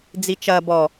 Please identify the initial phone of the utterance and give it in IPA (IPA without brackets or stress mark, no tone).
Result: d͡z